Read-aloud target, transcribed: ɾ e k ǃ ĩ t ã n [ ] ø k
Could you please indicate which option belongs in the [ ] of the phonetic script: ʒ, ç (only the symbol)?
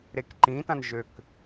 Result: ʒ